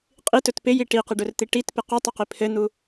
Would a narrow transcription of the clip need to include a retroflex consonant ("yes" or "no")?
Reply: yes